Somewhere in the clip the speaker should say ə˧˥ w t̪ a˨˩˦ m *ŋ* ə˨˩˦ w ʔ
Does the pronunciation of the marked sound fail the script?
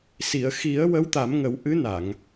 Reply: no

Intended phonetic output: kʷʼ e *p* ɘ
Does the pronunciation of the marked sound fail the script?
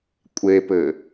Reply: no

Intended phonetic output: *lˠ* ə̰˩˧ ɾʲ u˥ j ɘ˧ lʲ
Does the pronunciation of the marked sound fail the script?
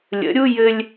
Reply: yes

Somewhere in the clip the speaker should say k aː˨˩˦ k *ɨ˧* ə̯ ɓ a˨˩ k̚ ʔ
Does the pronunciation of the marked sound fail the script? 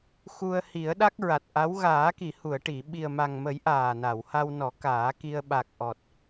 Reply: yes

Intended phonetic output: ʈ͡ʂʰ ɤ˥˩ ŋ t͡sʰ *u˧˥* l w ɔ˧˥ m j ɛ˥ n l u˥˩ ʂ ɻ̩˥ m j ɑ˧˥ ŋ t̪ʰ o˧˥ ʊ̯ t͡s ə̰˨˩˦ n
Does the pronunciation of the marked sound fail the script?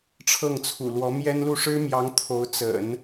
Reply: yes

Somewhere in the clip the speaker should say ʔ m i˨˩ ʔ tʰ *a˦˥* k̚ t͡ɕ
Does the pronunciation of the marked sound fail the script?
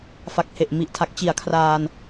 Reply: yes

